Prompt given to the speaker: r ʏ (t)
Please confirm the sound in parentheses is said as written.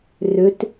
yes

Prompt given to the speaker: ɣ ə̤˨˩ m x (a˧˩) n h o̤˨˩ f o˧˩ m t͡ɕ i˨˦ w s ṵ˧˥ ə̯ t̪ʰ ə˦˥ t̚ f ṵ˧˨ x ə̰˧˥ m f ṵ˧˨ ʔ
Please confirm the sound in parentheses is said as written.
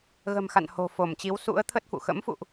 no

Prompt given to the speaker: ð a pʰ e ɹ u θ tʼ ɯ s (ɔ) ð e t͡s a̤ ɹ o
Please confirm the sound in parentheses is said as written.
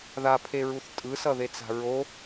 no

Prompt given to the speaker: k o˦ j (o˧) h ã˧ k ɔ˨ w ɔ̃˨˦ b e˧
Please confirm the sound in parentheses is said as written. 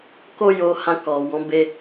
yes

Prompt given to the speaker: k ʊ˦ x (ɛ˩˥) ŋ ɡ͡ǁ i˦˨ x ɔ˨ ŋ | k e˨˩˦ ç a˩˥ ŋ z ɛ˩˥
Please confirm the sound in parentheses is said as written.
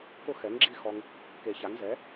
yes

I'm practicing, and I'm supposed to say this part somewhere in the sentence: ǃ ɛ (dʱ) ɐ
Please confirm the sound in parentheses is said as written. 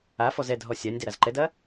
no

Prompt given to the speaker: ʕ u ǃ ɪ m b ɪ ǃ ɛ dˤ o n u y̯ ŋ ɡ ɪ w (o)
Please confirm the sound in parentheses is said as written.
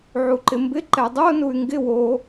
yes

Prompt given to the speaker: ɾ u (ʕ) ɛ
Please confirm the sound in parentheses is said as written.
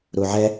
yes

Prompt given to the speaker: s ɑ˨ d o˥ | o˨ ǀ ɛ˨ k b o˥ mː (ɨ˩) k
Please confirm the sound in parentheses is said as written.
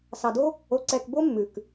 no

